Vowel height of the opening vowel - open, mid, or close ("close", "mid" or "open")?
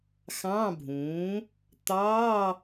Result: open